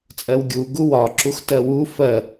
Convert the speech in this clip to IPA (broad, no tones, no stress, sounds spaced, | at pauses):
t͡sʼ ɜ w ɡʲ u ɡ u w ɒ ǁ u x t ɜ w u f ɜ